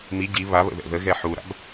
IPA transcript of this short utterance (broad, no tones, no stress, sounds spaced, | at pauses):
m i ɟ i β a β ə̰ ð ɛ̰ ð ə ɣ ɛ ħ u ɾ a̰ b